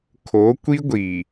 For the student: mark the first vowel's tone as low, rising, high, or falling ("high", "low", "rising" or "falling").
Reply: rising